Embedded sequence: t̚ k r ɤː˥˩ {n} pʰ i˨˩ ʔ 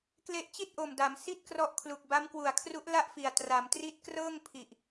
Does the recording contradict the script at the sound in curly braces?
yes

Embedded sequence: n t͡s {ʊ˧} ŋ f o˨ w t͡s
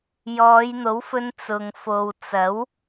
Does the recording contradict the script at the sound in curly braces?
yes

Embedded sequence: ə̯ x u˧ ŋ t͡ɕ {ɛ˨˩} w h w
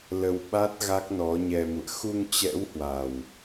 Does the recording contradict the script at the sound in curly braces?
yes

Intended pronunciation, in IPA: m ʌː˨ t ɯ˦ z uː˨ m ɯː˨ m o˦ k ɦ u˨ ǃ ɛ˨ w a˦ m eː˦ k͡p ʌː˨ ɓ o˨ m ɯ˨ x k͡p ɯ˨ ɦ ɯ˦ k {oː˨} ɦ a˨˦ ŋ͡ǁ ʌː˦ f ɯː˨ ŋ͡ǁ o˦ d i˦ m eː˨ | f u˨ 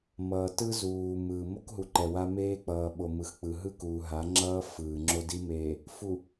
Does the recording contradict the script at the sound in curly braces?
yes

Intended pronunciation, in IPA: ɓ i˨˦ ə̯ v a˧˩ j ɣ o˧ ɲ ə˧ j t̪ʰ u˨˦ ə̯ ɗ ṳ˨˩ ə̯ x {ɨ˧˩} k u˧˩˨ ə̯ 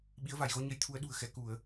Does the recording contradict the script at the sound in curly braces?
yes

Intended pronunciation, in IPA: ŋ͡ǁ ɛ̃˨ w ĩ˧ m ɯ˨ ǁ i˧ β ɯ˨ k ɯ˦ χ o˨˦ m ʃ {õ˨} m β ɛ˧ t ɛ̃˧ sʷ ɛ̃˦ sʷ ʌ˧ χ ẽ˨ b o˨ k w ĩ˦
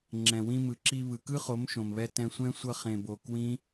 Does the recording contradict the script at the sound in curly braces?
no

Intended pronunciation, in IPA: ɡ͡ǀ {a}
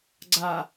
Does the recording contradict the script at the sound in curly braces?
no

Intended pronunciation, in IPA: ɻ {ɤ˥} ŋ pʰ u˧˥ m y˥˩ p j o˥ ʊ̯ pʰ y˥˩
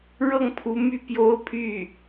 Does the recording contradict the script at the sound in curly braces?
yes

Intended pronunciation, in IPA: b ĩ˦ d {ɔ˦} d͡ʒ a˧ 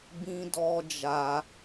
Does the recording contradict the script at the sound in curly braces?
no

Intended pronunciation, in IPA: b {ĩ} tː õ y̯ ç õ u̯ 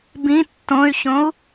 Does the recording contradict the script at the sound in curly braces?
no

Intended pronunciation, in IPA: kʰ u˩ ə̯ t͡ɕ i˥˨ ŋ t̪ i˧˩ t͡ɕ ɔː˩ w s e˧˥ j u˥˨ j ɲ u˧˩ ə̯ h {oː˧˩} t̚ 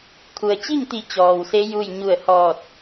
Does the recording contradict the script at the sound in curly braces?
yes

